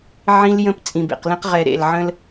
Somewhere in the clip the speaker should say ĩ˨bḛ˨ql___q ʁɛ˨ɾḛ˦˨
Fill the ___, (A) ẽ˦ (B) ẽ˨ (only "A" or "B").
A